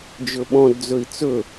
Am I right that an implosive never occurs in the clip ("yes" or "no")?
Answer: no